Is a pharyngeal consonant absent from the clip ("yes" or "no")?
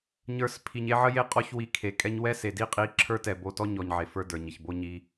no